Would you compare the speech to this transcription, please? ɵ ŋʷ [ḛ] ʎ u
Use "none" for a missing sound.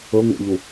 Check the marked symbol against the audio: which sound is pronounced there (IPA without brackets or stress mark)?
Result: ḛ